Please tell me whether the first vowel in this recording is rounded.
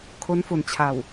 yes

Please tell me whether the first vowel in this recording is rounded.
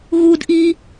yes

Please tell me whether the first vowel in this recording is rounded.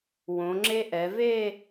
yes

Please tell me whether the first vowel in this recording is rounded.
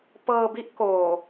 no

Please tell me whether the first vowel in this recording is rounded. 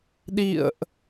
no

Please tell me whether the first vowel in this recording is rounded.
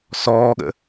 yes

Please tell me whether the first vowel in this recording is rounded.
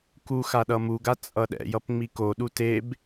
yes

